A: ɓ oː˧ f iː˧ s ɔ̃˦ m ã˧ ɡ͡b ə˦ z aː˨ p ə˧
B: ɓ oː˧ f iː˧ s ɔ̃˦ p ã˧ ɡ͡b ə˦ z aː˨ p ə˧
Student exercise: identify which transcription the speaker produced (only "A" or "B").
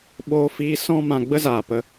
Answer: A